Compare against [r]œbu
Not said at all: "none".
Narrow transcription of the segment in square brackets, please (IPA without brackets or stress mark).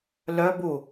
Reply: l